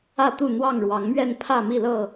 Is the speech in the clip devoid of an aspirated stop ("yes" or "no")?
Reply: no